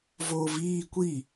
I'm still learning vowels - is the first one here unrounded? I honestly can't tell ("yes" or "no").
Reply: no